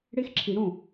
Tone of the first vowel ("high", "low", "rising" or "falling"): high